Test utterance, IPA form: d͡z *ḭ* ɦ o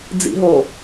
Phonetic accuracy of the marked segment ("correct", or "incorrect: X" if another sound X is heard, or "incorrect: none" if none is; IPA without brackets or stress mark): correct